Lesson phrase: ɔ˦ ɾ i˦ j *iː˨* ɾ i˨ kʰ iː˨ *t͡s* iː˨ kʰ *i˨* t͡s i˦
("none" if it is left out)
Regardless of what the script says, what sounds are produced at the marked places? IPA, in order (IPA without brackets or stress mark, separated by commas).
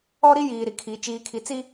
iː˨, t͡ʃ, i˨